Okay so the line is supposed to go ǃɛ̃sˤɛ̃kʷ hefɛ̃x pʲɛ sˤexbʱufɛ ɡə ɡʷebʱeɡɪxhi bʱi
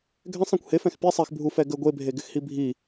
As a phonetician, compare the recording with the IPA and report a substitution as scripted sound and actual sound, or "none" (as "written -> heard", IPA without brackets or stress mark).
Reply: ǃ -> ɡʱ